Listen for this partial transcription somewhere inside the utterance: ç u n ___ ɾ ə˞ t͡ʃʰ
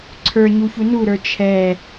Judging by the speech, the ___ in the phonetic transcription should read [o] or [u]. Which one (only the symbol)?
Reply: u